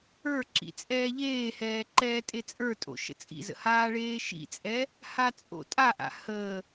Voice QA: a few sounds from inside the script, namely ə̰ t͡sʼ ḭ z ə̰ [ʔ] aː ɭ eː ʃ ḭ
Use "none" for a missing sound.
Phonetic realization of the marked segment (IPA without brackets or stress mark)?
h